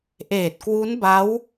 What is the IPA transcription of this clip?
ʔeː˨˩t̚kwu˦˥n ba˦˥w

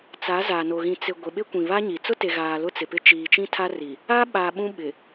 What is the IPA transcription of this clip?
t͡sa˨˦za˨no˨ ɣĩ˨t͡sɪ˨ ɡʷe˨ɓɪ˦kʷĩ˨βa˦ ɲi˨ t͡sʊ˦te˨ɣaː˨ lʊ˦t͡sɪ˨pɪ˦ t͡ʃiː˨t͡ʃĩ˦tʰa˦ri˨ | a˦ ɓa˨ ɓũ˦ ɓɪ˨

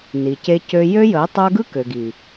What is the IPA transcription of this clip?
ni˨ce˦cø˦ jø˦jə˨˦ɪ̯ tˤə˞˦ ɡɯ˦kø˨ɡi˨

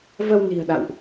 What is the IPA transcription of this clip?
və˧wni̤˨˩ə̯ ɗa̰˧˨wʔ

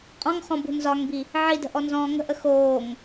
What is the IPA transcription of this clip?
qʼɔ̃ŋχɔ̃bṳ nzɒŋbi | ʕidə̤ʔɔnzɔ̃ː ŋə̤ʔə xoːŋ

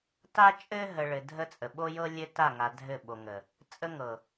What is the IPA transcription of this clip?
ta˦t͡ʃʼɘ˦ ɦə˨ ɭɘ˨ dʱə˦t͡sʼə˨ ɓo˦jɤ˦ lʲɘ˦ta˦˨ŋa˨ dʱɘ˦˨ɓo˨ŋə˨ | t͡sʼə˦ŋɤ˨

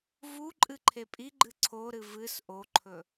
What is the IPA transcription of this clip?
vu ǃʼɨǃʰepʼiɡ͡ǃɨ ǀʰoɾɨ vɨs ʔoǃʰɵ

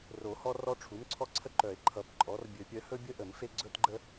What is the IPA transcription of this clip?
ro˨˩˦hɔ˦ rɔ˦ʈ͡ʂʰu˩˥mǀʰɔ˦ ǀʰə˦ǃœ˨˩˦e̯ ǃʰʌ˨˩˦pǃʼɔ˩˥r bʲɵ˨˩˦pʲœ˩˥hɵ˦bʲə˦ ʔə˨˩˦mfe˦ ɡ͡ǀɵ˦tɡ͡ǃə˦

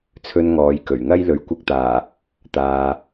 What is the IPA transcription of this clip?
t͡sʰɵ˧n ŋɔː˨˧j kɵ˨˩ɥŋɐ˥j lɵ˨˥ɥkʷɐ˧k̚t̪aː˨˩ | t̪aː˨

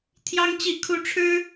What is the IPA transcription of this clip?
t̪ʰjɑ˥ŋt͡ɕi˥˩kʰu˥ ʈ͡ʂʰɻ̩˥

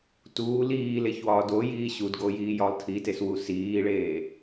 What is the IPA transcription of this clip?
tuː liːleçwɒː dojiː ɕudɡojiːjɒlˠ tʰiteswu siːɭeː

